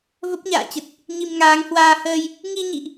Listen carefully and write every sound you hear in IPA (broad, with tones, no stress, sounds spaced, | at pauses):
v ə˦˥ p̚ ɲ a̰ː˧˨ t͡ɕ ə˨˩ t̚ | ɲ i˧ m ŋ aː˨˦ ŋ h w aː˧ h əː˧ j | ŋ i˧ ɲ ḭ˧˨ ʔ